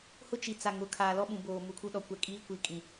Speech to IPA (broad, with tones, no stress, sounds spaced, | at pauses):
h ʊ˦ t͡ʃ i˨ t͡s a˨ ŋ ʊ˨ kʰ aː˨ l ɔ˦ ɓ ũ˨ b oː˨ m u˨ kʰ u˦ ɗ ɔ˨ kʷ ɛ˨ kʼ iː˦ kʷ i˨˦ kʼ ĩ˨